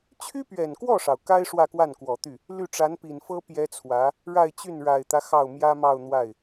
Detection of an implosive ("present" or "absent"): absent